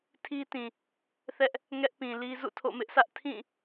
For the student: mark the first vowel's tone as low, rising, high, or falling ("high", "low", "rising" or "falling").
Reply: high